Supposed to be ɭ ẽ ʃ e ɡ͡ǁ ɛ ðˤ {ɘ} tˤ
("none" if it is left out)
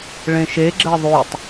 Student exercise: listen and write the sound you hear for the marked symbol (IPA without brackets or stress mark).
ʉ